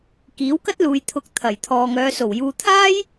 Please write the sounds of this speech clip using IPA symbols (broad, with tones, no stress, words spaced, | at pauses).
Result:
kiː˨˥wkɐ˥t̚luː˨j t̪ʰʊ˨k̚ t̪ʰɐ˨˩j t̪ʰɔː˨ŋœː˨˧so˨˩w juː˨t̪ʰaː˥j